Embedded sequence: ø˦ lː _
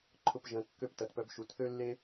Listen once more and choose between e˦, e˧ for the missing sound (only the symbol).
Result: e˦